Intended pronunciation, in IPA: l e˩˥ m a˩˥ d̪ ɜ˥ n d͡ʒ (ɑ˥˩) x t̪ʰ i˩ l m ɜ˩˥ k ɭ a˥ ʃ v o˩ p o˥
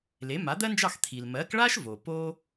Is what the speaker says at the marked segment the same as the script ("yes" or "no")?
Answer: yes